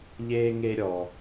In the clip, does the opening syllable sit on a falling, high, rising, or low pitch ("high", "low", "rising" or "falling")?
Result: high